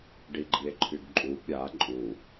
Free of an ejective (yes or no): no